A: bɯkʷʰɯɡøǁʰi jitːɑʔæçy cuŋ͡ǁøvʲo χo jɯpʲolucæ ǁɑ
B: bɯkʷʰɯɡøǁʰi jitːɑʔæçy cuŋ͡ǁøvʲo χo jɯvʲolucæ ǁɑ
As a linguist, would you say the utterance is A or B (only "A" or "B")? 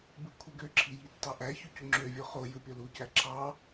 A